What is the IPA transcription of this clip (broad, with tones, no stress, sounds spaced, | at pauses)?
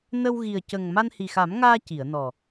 n ə˧ w ɣ i˨˩ ə̯ c ə˨˩ ŋ m a˧ n h i˨˩ x a˨˩˦ m ŋ aː˧ c i˨˩˨ ə̯ n ɔ˨˩